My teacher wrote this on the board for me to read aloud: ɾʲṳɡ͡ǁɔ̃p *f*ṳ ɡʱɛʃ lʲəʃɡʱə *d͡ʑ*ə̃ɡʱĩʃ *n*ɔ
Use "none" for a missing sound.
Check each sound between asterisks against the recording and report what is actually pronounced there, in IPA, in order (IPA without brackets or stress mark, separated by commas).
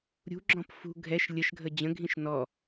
f, d͡ʑ, n